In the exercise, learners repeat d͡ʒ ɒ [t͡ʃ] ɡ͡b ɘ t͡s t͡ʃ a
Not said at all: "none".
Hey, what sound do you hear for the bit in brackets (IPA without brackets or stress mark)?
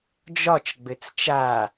t͡ʃ